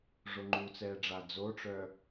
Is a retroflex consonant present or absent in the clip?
present